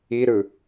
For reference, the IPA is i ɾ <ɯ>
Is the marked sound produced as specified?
yes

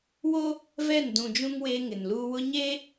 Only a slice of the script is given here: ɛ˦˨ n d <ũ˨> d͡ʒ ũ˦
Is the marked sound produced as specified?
yes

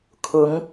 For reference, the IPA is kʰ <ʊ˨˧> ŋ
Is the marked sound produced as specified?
yes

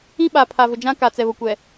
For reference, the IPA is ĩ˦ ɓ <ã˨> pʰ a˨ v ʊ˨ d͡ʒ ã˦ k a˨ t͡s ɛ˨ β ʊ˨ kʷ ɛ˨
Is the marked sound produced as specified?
no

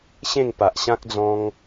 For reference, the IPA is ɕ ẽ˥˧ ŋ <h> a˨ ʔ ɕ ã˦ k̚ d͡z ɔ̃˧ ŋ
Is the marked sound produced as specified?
no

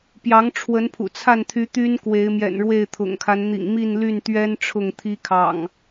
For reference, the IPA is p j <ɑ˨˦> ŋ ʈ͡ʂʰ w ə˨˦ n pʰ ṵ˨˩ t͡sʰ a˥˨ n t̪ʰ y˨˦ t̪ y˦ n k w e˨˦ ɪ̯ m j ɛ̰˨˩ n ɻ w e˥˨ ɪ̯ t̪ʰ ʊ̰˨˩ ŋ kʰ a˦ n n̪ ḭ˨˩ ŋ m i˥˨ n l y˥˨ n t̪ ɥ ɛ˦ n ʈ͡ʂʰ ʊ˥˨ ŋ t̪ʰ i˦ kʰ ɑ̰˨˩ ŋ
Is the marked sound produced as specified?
yes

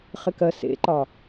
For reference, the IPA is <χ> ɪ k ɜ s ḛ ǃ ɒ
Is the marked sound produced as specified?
yes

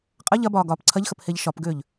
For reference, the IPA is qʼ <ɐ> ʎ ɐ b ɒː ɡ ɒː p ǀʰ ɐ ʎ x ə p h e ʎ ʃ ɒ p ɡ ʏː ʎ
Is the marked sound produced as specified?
yes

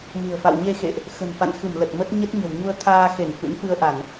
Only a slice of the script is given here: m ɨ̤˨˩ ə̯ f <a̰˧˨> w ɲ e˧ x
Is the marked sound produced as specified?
yes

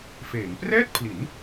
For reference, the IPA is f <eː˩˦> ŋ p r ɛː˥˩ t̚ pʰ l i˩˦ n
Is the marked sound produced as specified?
yes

